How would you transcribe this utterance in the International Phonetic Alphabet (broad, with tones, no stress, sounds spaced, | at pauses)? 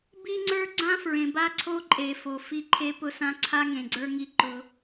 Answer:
b i˦ ŋ͡ǀ ə˞˦ ɡ͡ǀ ã˦ f ɹ ẽ˨ b a˦ ǀʰ o˦ ǃʼ e˨ f o˨ f i˦ ǃʰ e˦ p ʊ˦ s ã˦ ǀʰ a˦ ŋ ẽ˨ ɡ͡ǀ ə˞˦ ŋ i˦ ǃ ʊ˦